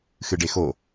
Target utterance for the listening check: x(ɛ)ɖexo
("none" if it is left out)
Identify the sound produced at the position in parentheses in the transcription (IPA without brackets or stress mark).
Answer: ɨ